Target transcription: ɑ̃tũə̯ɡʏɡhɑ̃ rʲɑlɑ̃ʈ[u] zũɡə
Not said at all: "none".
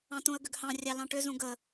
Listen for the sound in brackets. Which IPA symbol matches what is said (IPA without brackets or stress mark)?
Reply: ʏ